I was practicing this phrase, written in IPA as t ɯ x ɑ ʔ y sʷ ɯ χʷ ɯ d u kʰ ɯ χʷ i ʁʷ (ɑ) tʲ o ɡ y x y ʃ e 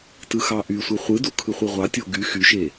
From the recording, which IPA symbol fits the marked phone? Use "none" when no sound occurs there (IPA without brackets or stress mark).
ɑ